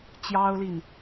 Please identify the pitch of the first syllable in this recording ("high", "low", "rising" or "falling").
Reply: high